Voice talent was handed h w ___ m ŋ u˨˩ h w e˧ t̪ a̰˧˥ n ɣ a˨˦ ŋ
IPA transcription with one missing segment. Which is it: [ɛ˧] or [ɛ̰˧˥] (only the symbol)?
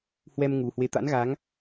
ɛ˧